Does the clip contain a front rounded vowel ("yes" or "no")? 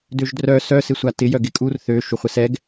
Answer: yes